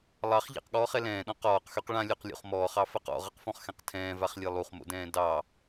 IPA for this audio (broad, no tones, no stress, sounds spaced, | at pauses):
lˠ ɑ χ ʎ a̰ q ɠ ɔː χ ɛ l ɛ̃ː ɗ ɔ̃ q ɔː q x y q ɭ ã lʲ o q lʲ o̰ χ m ɔː χ ɑ f a q ɔ̰ ʁ ʌ q f ɔ̃ χ x ɛ̃ q tʰ ɛ̃ː v a χ lʲ e lˠ u χ m o̰ d ɛ̃ː d ɑ